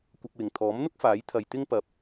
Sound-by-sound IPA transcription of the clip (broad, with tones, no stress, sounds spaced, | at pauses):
kʷ ɐ˧ k̚ w ɪ˨ ŋ t̪ʰ ɔː˨˥ m n̪ ʊ˥ k̚ f aː˨˥ j t̪ʰ ɐ˧ j t̪ ɪ˥ ŋ p ɐ˧ p̚